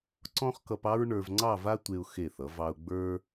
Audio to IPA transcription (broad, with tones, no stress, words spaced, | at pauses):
ǀɔ̃˥χkʌ˧pɑ˥ɹ ɳə˞˧v ŋ͡ǀɑ˥˧va˥ tʷe˧ʊ̯xe˧˩θʌ˩˧ vɑ˧ʊ̯ɡ͡bə˞˥